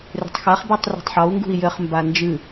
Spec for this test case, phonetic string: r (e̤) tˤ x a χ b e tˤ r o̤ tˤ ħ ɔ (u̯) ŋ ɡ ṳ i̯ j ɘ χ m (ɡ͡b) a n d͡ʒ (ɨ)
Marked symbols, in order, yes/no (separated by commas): yes, yes, no, yes